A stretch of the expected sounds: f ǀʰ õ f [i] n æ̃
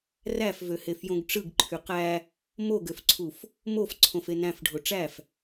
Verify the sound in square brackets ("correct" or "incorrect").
incorrect